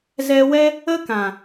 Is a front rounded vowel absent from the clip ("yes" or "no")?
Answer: yes